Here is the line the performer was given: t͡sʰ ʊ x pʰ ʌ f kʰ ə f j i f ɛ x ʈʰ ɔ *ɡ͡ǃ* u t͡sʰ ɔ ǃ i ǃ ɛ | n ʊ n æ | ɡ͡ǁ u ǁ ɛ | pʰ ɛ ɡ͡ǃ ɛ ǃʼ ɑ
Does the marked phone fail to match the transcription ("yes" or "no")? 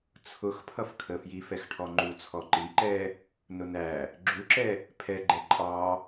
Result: yes